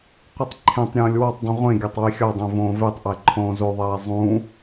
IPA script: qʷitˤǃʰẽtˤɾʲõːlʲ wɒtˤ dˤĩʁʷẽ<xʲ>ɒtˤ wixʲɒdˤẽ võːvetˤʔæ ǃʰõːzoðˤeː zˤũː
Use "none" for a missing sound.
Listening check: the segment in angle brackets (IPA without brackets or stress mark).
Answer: ɡʲ